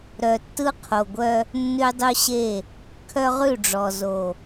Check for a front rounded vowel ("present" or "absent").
present